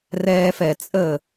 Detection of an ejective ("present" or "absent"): present